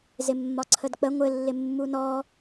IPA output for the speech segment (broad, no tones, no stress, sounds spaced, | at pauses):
z ɪ mː ɒ ǀʰ ə d k͡p ə ŋʷ ɘ lː ɪ mː u n ɔ